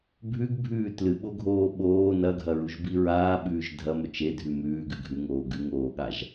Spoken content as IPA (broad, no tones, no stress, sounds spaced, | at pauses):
bʱ ʉ ɡ bʱ ʉː t l ɨ ɓ o ɡʱ oː ɓ oː n ɐ ɡʱ ɐ ɹ u ʒ b i ɹ aː ɓ ʉː ʒ dʱ ɐ m ɵ t͡ʃ e dʱ ʉ m ʉː ɡ ʉ ɡʱ ʉ ŋ oː ɡ ʉ ŋ oː ɠ a ʒ